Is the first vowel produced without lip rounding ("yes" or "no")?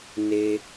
yes